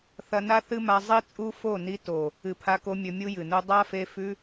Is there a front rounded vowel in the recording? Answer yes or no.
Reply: no